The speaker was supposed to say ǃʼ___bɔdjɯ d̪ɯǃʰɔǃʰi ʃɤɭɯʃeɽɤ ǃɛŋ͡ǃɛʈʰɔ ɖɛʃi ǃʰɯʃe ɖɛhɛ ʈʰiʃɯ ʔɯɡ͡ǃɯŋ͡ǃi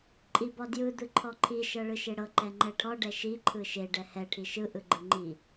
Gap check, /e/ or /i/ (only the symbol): i